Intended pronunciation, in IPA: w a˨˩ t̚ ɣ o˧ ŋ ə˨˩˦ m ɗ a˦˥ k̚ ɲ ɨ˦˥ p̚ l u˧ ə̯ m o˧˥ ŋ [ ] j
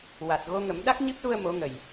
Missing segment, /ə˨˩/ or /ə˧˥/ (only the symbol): ə˨˩